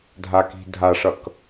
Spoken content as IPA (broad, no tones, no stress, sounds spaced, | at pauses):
dʱ a k i̤ dʱ a ʂ ʌ k